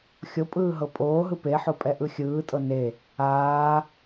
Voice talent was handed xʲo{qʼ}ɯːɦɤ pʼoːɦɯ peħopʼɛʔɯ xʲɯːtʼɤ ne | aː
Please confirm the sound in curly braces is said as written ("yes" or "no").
no